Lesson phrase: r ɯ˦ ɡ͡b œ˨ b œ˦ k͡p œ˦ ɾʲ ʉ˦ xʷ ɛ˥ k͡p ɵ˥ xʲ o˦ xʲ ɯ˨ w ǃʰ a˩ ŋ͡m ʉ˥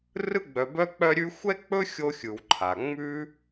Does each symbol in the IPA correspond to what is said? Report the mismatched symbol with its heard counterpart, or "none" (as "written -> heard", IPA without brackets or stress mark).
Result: none